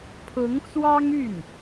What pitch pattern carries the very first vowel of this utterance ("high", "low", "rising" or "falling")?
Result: rising